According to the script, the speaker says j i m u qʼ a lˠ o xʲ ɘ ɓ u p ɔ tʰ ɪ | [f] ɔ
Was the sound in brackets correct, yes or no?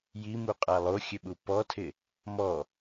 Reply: no